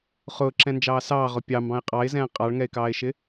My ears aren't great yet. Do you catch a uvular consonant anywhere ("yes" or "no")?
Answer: yes